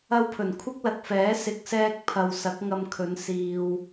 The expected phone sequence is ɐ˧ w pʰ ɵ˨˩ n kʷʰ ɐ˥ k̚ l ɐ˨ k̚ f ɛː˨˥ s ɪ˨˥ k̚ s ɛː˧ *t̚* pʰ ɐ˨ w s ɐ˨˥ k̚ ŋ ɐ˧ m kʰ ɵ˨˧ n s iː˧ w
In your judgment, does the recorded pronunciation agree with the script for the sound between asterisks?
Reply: no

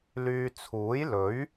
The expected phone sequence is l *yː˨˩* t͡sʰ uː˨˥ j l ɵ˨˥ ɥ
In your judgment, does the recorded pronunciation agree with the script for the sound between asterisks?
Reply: no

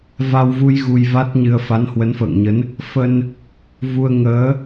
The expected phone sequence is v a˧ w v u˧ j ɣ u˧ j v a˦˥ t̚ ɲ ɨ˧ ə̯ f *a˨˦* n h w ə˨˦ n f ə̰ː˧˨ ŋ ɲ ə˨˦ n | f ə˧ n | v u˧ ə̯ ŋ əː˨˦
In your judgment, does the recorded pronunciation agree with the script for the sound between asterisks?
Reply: yes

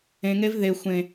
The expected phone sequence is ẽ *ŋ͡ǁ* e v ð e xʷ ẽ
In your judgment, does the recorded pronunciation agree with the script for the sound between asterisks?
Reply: no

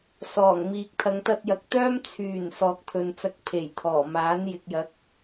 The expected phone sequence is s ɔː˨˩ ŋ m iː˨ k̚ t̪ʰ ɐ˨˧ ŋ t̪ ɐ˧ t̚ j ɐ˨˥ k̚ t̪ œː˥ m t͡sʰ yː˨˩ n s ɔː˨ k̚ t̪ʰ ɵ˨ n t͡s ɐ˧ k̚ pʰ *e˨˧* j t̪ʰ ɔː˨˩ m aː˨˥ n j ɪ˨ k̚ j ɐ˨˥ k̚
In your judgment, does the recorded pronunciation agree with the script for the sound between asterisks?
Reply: no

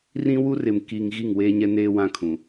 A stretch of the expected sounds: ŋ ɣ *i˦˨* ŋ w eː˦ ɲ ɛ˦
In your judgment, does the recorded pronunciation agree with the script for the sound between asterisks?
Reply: yes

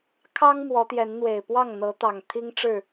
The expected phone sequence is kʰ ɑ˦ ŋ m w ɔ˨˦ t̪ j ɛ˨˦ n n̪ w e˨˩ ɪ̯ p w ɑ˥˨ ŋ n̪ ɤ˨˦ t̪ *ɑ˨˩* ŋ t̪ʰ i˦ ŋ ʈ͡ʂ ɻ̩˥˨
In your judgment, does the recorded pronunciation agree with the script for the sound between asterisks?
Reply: yes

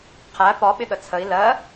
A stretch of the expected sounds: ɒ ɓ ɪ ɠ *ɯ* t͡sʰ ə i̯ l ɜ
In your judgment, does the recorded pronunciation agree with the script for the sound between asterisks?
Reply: no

